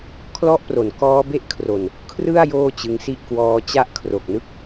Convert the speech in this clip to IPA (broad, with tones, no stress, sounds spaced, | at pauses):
kʰ l ɔ˦˥ ʔ p r o˩˦ n k ɔː˦˥ b e˦˥ ʔ kʰ r o˨˩ n | kʰ r ɯ˥˩ a̯ j oː˥˩ t͡ɕ ɯ˧ ŋ s i˥˩ ʔ k w ɔː˧ t͡ɕ a˦˥ ʔ kʰ r o˨˩ k̚ n ɯ˥˩ k̚